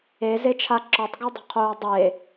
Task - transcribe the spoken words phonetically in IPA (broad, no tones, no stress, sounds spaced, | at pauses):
e z e t͡ʃʰ a ǁ ɔ tˤ ɡ a dˤ o̤ qʰ oː dˤ e